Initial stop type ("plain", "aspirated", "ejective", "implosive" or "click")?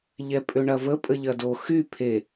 ejective